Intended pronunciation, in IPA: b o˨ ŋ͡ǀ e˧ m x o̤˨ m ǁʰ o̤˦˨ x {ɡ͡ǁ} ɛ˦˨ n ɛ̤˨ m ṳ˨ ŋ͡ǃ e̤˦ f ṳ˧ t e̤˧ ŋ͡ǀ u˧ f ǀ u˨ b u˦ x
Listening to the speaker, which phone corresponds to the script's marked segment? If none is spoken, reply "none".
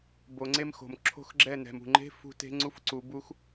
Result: ɡ͡ǁ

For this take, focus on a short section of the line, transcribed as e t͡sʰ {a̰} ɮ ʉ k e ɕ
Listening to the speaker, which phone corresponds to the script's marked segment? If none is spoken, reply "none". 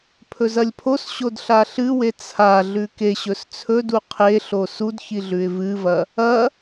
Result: a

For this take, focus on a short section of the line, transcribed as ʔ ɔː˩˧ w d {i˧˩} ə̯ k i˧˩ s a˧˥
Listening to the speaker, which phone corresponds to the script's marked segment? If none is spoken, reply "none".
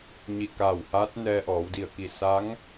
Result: i˧˩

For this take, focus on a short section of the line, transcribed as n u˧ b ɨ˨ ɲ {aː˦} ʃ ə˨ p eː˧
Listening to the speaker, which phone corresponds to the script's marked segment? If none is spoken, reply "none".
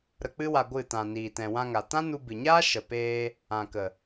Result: aː˦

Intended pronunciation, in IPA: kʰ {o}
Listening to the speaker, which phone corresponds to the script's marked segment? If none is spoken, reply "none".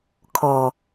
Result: ɔ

